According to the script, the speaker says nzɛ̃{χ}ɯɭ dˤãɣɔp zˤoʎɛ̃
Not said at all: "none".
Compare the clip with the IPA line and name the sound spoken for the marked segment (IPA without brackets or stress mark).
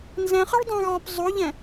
χ